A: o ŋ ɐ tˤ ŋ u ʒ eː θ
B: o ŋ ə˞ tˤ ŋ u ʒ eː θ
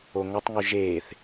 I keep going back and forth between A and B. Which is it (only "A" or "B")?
A